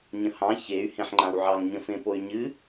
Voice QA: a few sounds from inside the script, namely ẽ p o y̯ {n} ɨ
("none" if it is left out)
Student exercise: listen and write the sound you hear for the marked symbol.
ɲ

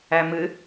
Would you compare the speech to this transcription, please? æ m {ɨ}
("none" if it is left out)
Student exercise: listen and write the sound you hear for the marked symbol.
ɨ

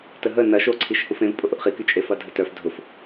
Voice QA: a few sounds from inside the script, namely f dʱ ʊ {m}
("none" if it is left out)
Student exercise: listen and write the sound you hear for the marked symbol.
f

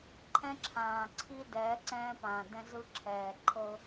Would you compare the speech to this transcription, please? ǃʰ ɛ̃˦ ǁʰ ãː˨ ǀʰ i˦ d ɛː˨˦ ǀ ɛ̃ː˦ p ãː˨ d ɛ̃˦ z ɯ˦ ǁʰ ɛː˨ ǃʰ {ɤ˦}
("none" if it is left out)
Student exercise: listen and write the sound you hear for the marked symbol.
ɤ˦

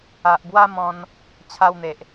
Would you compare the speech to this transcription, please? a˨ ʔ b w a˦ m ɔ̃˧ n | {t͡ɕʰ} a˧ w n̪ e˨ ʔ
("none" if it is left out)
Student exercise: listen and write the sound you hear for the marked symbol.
t͡ɕʰ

